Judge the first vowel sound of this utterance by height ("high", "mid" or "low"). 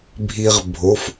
high